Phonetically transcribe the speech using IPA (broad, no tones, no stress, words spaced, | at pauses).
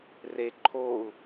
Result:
re ǃʰoːu̯